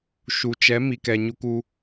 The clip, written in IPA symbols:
ʃ u˨ t͡ʃ ɛ˨˦ m i˨ k ɛ˨ ɲ u˧ k u˧

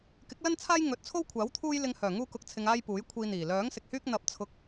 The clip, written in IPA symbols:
k ɪ˨˥ k̚ l ɐ˥ n t͡sʰ aː˥ j ŋ ɵ˨˥ t̚ t͡sʰ o˥ w kʷʰ aː˨˥ w t̪ʰ uː˥ j l ɪ˧ ŋ h œː˨˩ ŋ uː˧ k ʊ˨ k̚ t͡sʰ ɪ˨ ŋ aː˥ j p uː˨˥ j kʷʰ iː˧ n̪ iː˨˩ l œː˨˥ ŋ s ɪ˨ k̚ h yː˥ k̚ n̪ ɐ˧ p̚ t͡sʰ ʊ˧ k̚

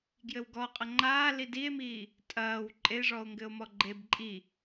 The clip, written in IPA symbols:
ɡ j ɘ w ɡ ɔ qʼ ɐ ŋ͡ǃ aː l i d i e̯ m iː | tʼ ɐː w ǃʼ e ʐ ɔ o̯ ŋ ɡ ɘ o̯ m ɔ ɡ͡ǃ e b ǃʼ i

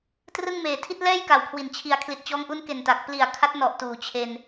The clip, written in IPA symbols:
t r ɯ˥˩ ŋ m eː˨˩ tʰ i˥˩ t̚ l ɛː˥˩ j k a˩˦ w kʰ w i˨˩ n t͡ɕʰ i˨˩ a̯ kʰ l i˨˩ t̚ t͡ɕ ɔː˦˥ ŋ ʔ u˦˥ n k e˨˩ n t a˨˩ k̚ p l i˨˩ a̯ kʰ a˦˥ t̚ n ɔ˨˩ ʔ t uː˨˩ t͡ɕʰ e˧ n

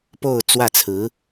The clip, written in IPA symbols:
p o˥˧ ʊ̯ t͡s w ä˥˩ t͡sʰ ɹ̩˧˥

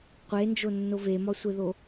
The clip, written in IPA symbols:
qʷ e n d͡ʒ o nː o v e m ɒ sʷ e ð o

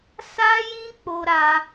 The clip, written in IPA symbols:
s a˦ j ĩ˦ k͡p o˧ ɾ a˧

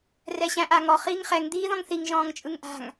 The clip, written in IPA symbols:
r ɛ ɕ æ̃ ʔ a ŋ ɔ χ iː ŋ χ ɛ ŋ d̪ iː ð ɔ̃ ŋ θ i ŋ ʒ ɔ̃ː ŋ t͡ʃʼ ɯ ŋ ʔ a̤ ŋ

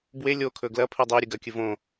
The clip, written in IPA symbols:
b w e lʲ o kʰ ɵ ɡ l ɐ pʰ ɨ dˤ e ɾʲ ɨ ɡ ɐ kʲ ɨ v õ

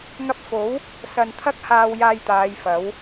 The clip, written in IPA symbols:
ŋ ɐ˧ p̚ f o˨˥ w | s ɐ˨ n t̪ʰ ɐ˥ k̚ h aː˧ w j aː˧ j t̪ aː˨˧ j f ɐ˨˥ w

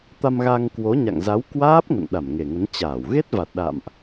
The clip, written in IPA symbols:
t̪ a˧ m ɣ a˧ ŋ k w o˨˦ ɲ a̰˧˨ ŋ z a˨˦ w k w aː˦˥ p̚ ŋ ə̰˧˨ n ɗ a˧˩ m ŋ e˨˩ ŋ ə˨˦ n t͡ɕ aː˧˩ w ɣ e˦˥ t̚ v a˨˩ t̚ ɗ a̰˧˨ m ʔ

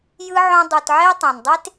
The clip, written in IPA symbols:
j ɯ˥ ʕ õ˦ dˤ u˨ t ʕ e˥ tˤ ẽ˩ n dˤ e˥ t

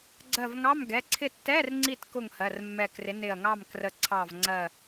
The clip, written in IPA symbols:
ɡ͡ǀ ɜ˧˩ v ŋ ɑ˧˥˧ m ɡ ɛ˩˧˩ ǀʰ ɪ˥˨ tː ɛ˧˥˧ r ŋ͡ǀ i˥˨ t k ʊ˥˨ ŋ h ɜ˩˧˩ r mː ɛ˧˩ k r ɪ˨˥ n ɪ˧˩ ɐ̯ ŋ ɑ˥˨ m k r ə˧˩ ǀʰ ɑ˧˩ v ŋ͡ǀ ɜ˧˩

